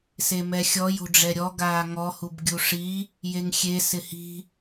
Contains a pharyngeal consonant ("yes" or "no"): no